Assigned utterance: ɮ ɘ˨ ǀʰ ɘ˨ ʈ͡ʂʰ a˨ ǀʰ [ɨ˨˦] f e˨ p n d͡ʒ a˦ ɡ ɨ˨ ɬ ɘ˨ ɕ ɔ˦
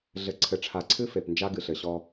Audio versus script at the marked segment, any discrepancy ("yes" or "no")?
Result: yes